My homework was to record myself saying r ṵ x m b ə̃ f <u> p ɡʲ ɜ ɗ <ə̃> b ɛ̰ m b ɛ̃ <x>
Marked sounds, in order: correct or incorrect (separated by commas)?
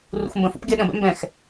incorrect, correct, correct